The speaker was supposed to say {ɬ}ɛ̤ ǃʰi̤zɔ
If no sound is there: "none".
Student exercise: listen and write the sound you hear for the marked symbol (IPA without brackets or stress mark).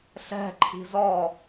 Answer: ɬ